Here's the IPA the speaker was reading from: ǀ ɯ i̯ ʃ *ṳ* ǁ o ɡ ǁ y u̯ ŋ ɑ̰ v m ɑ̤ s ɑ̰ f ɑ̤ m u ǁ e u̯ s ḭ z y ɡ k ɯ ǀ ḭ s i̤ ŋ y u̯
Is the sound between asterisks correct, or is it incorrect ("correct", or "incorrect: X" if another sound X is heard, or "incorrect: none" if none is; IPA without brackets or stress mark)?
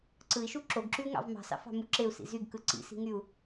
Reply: incorrect: u